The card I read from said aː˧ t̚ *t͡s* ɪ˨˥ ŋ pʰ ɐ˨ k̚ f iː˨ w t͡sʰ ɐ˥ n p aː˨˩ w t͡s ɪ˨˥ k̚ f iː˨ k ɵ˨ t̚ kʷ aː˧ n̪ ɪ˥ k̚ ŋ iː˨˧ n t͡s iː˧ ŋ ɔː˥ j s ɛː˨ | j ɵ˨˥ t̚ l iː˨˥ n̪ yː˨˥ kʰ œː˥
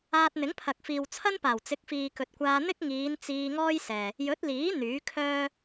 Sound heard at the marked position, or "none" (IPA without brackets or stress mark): n̪